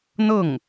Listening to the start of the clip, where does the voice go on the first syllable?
falling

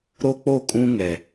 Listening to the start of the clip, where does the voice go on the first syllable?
high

